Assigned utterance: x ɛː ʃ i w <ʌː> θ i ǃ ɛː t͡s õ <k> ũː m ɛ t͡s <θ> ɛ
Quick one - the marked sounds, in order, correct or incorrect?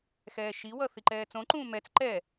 incorrect: ʌ, incorrect: ǃ, incorrect: ǃ

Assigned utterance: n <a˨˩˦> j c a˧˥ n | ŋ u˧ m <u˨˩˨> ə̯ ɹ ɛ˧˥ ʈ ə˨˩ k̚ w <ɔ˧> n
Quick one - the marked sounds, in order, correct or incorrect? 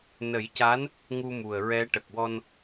incorrect: ə˨˩˦, incorrect: u˨˩, correct

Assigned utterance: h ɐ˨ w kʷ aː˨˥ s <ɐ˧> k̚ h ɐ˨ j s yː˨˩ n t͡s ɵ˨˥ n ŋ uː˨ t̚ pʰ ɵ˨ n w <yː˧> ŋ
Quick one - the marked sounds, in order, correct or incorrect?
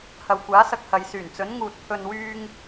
correct, correct

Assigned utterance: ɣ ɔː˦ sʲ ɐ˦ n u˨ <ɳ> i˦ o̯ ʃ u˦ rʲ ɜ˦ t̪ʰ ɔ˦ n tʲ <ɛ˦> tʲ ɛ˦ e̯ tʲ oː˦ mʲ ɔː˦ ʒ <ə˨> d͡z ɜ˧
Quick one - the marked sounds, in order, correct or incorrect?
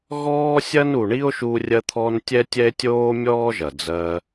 correct, correct, incorrect: ɐ˨

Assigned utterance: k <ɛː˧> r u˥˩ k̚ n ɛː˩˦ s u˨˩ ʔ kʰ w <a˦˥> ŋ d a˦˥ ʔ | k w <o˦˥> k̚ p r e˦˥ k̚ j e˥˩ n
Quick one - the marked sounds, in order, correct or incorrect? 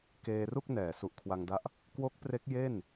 incorrect: eː˧, incorrect: a˧, correct

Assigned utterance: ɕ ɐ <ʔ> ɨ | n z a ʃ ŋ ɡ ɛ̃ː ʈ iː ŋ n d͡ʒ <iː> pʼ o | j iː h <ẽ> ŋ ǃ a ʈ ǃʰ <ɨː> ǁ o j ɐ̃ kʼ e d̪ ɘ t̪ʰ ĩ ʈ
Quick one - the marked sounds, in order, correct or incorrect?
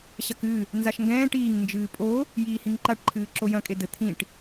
incorrect: k, incorrect: ɨː, incorrect: ĩ, correct

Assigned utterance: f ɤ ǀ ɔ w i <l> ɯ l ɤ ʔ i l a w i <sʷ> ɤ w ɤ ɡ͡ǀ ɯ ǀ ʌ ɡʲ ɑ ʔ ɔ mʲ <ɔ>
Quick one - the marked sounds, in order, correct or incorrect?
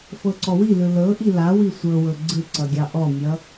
correct, correct, incorrect: ʌ

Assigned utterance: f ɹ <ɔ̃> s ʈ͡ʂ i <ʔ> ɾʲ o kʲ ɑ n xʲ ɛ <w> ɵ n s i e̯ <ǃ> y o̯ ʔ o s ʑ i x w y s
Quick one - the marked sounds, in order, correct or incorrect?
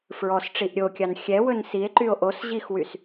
incorrect: ɔ, correct, correct, correct

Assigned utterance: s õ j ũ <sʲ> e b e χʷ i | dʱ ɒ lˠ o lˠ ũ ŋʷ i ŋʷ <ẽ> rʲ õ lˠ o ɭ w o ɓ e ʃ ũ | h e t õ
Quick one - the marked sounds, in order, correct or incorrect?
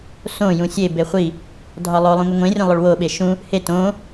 correct, correct

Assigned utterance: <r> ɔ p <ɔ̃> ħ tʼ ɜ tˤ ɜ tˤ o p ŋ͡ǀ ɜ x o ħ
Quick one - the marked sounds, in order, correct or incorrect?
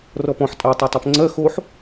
correct, correct

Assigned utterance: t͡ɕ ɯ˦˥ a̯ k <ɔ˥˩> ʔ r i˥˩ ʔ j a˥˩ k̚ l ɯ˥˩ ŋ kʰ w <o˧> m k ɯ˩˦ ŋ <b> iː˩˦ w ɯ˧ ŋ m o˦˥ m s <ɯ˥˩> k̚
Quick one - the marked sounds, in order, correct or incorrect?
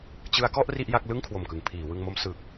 correct, incorrect: o˨˩, incorrect: pʰ, incorrect: ɯ˨˩

